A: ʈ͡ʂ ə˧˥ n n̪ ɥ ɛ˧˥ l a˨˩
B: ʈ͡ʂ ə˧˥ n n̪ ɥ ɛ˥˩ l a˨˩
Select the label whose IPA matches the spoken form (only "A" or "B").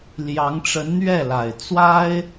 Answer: B